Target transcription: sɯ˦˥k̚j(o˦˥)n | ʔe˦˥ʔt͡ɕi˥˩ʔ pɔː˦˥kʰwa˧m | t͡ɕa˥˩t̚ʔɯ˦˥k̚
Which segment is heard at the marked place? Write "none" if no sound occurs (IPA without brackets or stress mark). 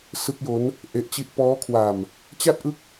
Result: o˦˥